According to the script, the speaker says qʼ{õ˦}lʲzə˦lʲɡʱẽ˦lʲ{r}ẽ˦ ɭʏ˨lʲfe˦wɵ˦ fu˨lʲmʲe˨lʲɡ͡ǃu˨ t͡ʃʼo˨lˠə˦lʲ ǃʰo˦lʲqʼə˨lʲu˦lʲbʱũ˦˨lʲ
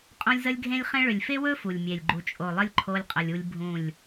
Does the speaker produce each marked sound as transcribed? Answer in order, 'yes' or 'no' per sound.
yes, no

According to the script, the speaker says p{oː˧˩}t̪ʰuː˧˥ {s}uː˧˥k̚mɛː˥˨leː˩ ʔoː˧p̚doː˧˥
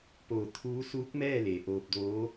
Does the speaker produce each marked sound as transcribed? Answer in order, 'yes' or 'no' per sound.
yes, yes

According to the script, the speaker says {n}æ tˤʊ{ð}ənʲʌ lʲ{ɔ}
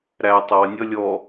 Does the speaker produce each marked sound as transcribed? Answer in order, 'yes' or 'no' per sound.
no, no, yes

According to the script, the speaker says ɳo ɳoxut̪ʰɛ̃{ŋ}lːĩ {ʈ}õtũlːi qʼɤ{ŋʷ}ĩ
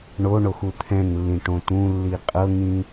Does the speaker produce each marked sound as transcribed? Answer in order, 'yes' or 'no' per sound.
yes, yes, no

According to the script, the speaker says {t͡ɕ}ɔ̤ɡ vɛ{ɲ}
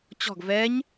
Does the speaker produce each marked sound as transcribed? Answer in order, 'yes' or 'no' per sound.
yes, yes

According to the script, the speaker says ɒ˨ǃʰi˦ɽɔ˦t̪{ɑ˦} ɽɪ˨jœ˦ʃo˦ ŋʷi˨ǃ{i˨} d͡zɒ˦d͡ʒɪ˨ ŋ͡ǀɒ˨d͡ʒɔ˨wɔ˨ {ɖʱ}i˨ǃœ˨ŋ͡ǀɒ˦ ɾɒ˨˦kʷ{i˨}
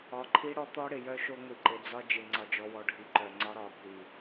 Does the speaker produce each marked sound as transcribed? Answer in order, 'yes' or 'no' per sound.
no, no, yes, yes

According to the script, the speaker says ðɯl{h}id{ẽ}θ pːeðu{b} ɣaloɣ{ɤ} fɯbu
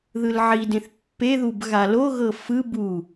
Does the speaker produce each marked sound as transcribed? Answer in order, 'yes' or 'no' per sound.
no, yes, yes, yes

